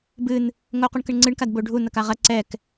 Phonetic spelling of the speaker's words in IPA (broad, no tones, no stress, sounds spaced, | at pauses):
b ɨ n | ŋ o q u ɳ k ɘ ɳ ŋ͡ǀ ɨ ɳ k a d b o ɖʱ u n ɐ k a ʁ ɐ ǀ ɛ k